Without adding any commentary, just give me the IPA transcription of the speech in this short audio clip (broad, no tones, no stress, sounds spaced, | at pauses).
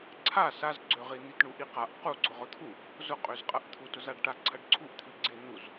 ǀʰ a s a z ɡ͡ǀ ø ʁ i n̪ i t ɳ u ʔ i q a ʔ q u ɡ͡ǀ ʊ ʁ ʊ t̪ʰ u | z ʊ qʼ ø z qʼ ɐ ʔ t̪ʰ u t ʊ z a ɖ ʈ a ǀʰ ɐ ɖ ǀʰ u ʔ t̪ʰ i ɡ͡ǀ ɪ n̪ u z